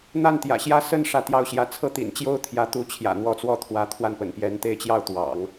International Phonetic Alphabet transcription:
n̪ a˥˩ n t̪ j ä̰˨˩ ɕ j ä˥˧ s ə˥˧ n ʂ ä˥˧ t̪ j ɑ˥˧ ʊ̯ ɕ j ä˥˧ t͡sʰ ɤ˥˩ t̪ ḭ˨˩ n t͡ɕ j o˥ ʊ̯ t̪ʰ j ä˧˥ t̪ u˧˥ t͡ɕʰ j ä̰˨˩ n̪ w ɔ˧˥ t͡s w ɔ˥˩ t̪ʰ w ä˧˥ t̪ʰ w a˥˩ n p ə̰˨˩ n p j ɛ˧˥ n t̪ e˥˧ ɪ̯ t͡ɕ j ɑ˥˩ ʊ̯ t̪ w ɑ̰˨˩˦ ŋ

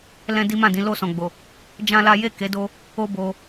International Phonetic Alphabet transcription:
l ɛ̃˦ d i˦ m ã˦˨ d ĩ˨˦ l o˦˨ s ɔ̃˨ ɡ͡b o˨ | d͡ʒ ã˦ l a˦ j e˦˨ k e˨˦ d o˧ | o˦ b o˧

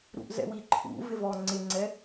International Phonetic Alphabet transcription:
ɾ ṵ ʔ z ɛ̰ w i ǃʰ ṵ v ɪ v ɔ ŋ͡ǀ ɪ ŋ͡ǀ ɛ

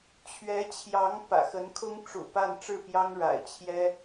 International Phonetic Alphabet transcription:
t͡ɕʰ ɥ ɛ˧˥ t͡ɕʰ j ɑ˧˥ ŋ p ä̰˨˩ x ə˧˥ n kʰ ʊ˥ ŋ ʈ͡ʂ ṵ˨˩ p a˥˧ n ʈ͡ʂ ɻ̩˥˩ p j ɑ˥ ŋ ɻ a̰˨˩ ɪ̯ t͡ɕʰ j ɛ˥

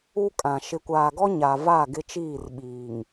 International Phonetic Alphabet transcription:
u˦ kʼ ã˨ ʃ ɪ˨ kʷ aː˨ ɡ ɔ˦ ɲ a˨ v a˦˨ ɡ ɪ˦ t͡ʃ iː˦˨ r ɓ iː˨ ŋ

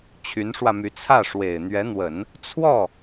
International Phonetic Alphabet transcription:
t͡ɕʰ y˧˥ n ʂ w ä˧ m y˧˥ t͡sʰ ä˥˩ ʂ w e˨˩ ɪ̯ n̪ ɥ ɛ˧˥ n̪ w ə˨˩˦ n | t͡sʰ w ɔ˥˩

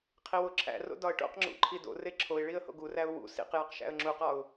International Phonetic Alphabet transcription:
qʰ i w o ǁʰ æ̰ r o̰ d ɒ ə̯ ʈ o̰ q ŋ͡ǁ ṵ ǃʰ i d o̰ r e ǁʰ o ɪ̯ ɭ i ə̯ h o̰ ɡ u r æ ʊ̯ w ṵ s ḭ q j ɒ q ʃ æ̰ ə̯ ŋ͡ǁ u q ɒ ʊ̯

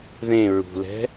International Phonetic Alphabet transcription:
ð ẽ ɹ ṳ l ɛ̤

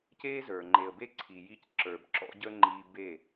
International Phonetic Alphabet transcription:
c e˦ z ə˞˨ ŋ͡ǃ e˨ ə̯ b e˦ ǀʰ i˨ j i˦ c ǁ ə˞˨ b ǁ ɔ̰˦ ɟ ə˦ ŋ͡ǃ i˦ b e˦˨

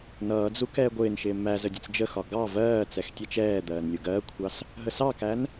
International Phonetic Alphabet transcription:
n ʌː d͡z u k ɛː ɡʷ ɪː n ʃ ɪː m æ z ə dʲ ə t͡s d͡ʒ ə x ɒ ɡ ɑ v ɜː t͡s ɛ x tʲ ɛ t͡ʃ ɛː d̪ ɜː n lʲ u ɡ ɜː kʷʰ ɑ s | ɦ ə s ɑ k æ n

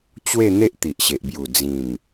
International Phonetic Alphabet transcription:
t͡ɕ w e˥˧ n̪ e˦ ʔ t̪ i˨ ʔ ɕ e˨ ʔ b j u˨˩ d͡z ĩ˨˩ m

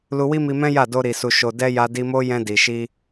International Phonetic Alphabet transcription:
l u˧ w i˦ m i˧ m ɛ̃˦ j a˦˨ d o˧ ɾ i˨ s u˨ ʃ o˨ d ɛ˧ j a˧ d i˧ m o˦ j ɛ̃˧ d i˨ ʃ i˧

